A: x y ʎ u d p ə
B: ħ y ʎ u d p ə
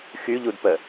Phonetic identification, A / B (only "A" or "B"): A